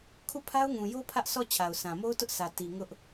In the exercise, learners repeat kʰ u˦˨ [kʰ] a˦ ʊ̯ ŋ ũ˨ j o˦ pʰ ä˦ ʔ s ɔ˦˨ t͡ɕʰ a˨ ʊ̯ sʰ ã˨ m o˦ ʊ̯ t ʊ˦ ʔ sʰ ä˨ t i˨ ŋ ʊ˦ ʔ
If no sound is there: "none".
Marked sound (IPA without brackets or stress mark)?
pʰ